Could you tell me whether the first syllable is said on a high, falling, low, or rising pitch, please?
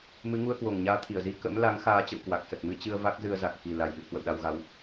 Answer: rising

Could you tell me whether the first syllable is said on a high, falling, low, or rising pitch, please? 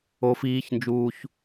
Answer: high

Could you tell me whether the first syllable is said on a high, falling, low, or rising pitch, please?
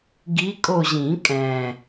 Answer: rising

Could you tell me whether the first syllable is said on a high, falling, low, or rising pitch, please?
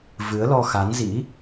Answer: rising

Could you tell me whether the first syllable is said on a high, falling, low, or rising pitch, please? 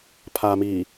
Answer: low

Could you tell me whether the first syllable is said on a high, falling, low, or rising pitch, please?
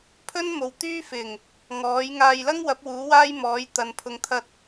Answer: high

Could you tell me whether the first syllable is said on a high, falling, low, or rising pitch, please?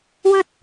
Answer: high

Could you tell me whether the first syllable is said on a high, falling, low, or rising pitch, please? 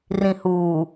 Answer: low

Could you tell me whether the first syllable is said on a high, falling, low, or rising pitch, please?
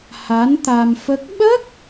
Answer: rising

